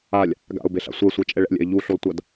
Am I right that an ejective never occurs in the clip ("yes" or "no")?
no